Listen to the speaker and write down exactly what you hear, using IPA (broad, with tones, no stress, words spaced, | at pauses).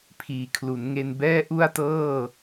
pʰiː˨˩kʰlu˩˦nŋe˧n bɛː˥˩ ʔu˥˩a̯tɤː˥˩